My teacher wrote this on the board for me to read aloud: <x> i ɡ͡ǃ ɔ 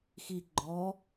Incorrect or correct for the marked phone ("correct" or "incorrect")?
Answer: correct